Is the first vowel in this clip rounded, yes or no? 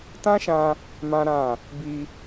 no